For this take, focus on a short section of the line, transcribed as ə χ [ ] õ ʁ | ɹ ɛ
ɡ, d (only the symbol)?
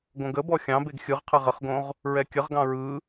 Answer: ɡ